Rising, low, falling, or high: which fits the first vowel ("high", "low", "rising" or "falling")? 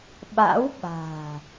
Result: rising